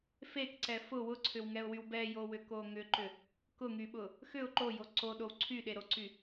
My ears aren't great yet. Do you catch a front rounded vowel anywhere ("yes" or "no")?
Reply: yes